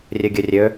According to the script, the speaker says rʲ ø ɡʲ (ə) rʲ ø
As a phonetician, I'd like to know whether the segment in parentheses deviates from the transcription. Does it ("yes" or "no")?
yes